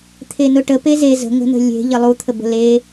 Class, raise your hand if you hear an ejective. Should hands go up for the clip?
no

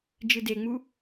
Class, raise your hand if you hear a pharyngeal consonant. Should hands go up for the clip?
no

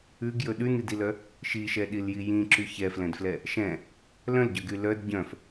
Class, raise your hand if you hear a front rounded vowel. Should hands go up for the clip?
yes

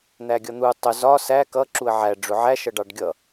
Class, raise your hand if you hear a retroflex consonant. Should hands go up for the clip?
yes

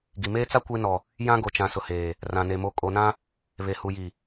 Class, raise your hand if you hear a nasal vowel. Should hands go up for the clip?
yes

